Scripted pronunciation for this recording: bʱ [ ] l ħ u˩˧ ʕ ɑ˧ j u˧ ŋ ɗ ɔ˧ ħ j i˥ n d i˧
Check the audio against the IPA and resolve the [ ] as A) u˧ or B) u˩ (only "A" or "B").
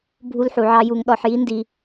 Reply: A